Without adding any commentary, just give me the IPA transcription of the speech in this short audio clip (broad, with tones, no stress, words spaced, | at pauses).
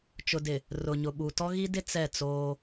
t͡ʃʊ˨dɪ˨ | rʊ˨ ɲʊ˨ɓu˨ tɔ˦ɣi˦dɪ˦ t͡sɛ˦˨t͡soː˦